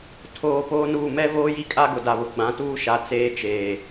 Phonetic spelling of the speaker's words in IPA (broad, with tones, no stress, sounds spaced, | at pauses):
tʰ oː˨ p oː˦ n uː˦˨ m ɛ˦ v oː˦ j i˦ kʼ a˦ ɡ ʊ˨ d a˨ β ʊ˨ ɡ͡b ã˨˦ t uː˦ ʃ a˨ t͡s eː˦ t͡ʃ eː˨